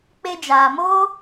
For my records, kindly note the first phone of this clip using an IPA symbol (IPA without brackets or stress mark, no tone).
k͡p